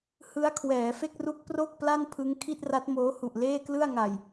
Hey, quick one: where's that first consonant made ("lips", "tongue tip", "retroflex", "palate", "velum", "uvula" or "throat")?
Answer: throat